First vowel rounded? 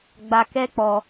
no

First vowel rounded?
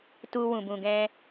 yes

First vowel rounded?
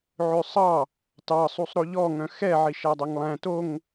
yes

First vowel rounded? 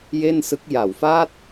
no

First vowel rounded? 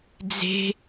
no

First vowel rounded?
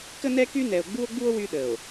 no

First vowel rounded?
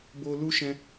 yes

